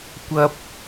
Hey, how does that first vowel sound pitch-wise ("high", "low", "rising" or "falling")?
high